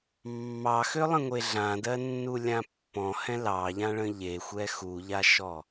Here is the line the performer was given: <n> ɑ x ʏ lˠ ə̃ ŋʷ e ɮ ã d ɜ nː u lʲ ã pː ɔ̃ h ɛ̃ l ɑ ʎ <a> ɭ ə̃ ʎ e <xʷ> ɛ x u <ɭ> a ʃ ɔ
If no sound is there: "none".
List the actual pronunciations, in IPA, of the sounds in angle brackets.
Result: mː, ã, xʷ, ʎ

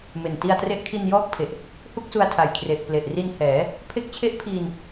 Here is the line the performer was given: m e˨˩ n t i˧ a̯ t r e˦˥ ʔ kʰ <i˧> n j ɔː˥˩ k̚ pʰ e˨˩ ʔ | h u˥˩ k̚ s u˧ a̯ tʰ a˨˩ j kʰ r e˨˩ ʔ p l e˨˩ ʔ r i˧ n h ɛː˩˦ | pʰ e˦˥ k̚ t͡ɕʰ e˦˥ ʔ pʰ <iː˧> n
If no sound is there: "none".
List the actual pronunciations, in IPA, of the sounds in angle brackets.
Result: i˧, iː˧

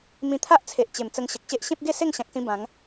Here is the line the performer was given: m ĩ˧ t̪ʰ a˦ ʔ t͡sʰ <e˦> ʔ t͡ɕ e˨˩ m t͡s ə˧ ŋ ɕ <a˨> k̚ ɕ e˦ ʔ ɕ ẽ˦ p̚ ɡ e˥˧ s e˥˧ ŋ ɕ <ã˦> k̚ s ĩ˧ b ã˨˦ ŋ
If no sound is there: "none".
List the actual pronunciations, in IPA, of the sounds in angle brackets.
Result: e˨, ə˨, ã˨

